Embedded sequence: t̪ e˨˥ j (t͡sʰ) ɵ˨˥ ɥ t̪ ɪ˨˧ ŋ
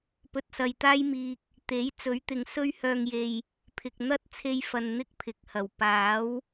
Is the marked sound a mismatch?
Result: yes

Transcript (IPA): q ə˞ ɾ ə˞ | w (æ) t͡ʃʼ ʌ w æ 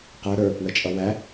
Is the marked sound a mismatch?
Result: yes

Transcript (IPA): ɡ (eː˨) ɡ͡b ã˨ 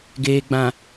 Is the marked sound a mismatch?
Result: no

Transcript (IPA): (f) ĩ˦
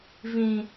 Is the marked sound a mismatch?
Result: yes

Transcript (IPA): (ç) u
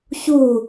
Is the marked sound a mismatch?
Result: no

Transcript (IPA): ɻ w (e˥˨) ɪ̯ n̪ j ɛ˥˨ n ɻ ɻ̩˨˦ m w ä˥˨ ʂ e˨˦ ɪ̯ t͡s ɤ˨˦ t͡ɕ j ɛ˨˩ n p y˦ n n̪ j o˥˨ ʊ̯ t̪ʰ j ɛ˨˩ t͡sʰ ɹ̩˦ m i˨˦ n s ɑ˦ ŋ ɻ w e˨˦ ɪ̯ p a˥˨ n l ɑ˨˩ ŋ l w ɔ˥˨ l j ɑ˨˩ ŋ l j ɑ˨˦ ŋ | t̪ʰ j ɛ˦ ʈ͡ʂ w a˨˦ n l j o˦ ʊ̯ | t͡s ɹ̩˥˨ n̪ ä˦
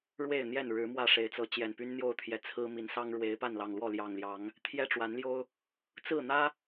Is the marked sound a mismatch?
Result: no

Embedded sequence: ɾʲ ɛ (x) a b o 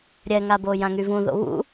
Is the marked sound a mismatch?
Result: yes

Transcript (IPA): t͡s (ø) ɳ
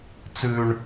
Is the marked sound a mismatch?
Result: yes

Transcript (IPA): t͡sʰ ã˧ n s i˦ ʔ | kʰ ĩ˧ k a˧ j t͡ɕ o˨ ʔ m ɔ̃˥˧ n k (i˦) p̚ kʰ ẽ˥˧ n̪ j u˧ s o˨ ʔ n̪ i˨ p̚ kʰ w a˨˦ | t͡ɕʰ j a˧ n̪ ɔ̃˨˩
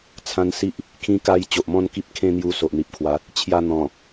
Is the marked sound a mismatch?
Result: no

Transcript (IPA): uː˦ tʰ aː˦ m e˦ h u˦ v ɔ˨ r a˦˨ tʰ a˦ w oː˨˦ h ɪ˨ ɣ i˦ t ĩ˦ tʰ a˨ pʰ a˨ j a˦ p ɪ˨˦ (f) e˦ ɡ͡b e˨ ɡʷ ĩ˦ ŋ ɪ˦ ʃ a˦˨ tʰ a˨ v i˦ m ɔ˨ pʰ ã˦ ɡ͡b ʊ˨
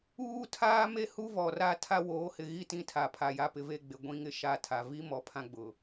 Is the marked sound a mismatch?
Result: yes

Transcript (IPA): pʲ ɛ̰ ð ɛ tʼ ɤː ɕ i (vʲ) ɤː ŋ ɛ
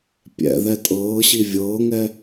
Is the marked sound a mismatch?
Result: no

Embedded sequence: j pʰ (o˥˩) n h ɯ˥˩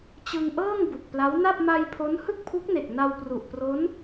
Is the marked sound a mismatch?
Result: yes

